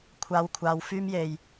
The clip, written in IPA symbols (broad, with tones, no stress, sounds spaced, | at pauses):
kʷʰ aː˨˧ w kʷʰ aː˨˧ w f yː˧ m j e˨˩ j